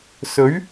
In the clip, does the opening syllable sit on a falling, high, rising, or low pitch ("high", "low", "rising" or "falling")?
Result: rising